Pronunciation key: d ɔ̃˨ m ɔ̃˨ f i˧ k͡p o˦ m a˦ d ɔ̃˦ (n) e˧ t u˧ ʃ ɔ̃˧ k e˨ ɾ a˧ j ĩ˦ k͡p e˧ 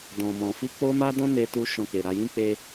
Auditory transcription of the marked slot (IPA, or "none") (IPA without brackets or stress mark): n